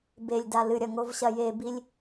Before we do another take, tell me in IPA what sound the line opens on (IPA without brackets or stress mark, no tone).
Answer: b